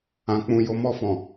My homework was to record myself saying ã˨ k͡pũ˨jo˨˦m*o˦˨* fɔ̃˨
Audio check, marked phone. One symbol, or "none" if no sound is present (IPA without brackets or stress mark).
ɔ˦˨